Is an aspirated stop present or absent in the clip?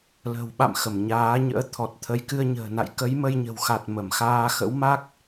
present